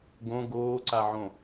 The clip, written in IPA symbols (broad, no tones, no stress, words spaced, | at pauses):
ɡõ ɡoːǀaʕõ